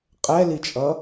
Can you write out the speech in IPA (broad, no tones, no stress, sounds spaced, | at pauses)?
qʼ ɛ l i t͡ʃʼ ʌ